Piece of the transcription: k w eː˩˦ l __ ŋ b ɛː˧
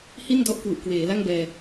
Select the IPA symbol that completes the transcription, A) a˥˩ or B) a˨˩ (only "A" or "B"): A